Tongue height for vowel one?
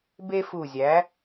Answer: mid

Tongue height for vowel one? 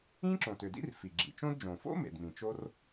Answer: high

